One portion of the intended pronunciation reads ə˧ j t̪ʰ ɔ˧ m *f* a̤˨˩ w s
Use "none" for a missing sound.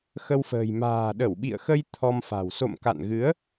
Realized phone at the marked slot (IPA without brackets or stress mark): f